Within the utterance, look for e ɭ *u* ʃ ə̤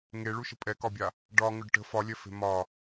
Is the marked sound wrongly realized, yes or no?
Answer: no